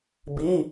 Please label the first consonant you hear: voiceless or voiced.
voiced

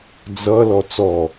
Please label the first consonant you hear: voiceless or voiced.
voiced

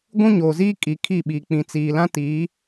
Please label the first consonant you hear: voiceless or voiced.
voiced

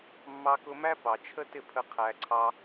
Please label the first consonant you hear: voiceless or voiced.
voiced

